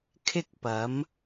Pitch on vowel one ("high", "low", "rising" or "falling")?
high